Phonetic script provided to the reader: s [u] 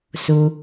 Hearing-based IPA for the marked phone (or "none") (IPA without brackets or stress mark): u